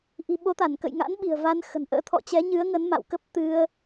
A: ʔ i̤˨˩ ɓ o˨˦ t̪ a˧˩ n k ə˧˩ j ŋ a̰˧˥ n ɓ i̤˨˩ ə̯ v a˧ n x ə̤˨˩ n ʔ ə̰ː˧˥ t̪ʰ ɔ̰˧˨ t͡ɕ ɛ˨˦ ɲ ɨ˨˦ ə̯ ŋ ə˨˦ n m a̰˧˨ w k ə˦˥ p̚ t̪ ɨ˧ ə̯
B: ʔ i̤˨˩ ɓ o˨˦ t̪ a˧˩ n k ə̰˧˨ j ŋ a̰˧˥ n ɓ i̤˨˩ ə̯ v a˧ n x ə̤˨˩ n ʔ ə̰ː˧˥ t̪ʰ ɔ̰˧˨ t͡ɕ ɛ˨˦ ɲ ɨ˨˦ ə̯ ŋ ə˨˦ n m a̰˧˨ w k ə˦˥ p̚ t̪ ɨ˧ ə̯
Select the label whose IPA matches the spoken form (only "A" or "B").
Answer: B